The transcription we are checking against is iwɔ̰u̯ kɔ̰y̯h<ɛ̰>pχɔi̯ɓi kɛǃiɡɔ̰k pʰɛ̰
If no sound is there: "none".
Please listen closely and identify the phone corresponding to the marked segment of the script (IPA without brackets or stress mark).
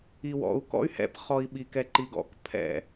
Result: ɛ̰